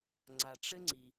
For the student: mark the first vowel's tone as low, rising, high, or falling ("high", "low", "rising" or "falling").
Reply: low